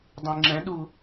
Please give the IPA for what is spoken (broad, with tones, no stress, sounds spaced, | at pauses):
dˤ ẽ˨ ŋ͡ǁ ɛ̃˨˥ ɗ u˨